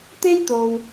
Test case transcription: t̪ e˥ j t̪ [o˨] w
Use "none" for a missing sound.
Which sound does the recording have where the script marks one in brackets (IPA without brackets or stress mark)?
o˨